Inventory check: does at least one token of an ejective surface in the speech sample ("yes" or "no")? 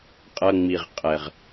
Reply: yes